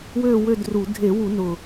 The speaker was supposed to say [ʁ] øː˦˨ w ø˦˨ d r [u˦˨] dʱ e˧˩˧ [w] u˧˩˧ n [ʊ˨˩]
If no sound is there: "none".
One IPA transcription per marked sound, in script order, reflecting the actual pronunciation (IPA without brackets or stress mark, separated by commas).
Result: w, u˧˩˧, w, ʊ˨˩